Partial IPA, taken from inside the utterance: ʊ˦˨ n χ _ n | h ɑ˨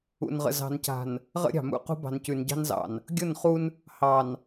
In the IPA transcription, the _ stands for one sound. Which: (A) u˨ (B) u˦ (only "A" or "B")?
B